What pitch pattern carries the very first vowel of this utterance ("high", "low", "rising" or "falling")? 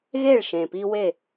falling